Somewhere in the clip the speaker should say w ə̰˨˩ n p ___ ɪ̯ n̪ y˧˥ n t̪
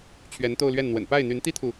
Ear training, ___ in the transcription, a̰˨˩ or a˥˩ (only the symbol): a˥˩